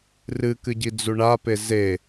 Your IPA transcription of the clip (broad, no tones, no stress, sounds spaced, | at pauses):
r ɨ k ɨ ɟ i d͡z u ɳ a p e z e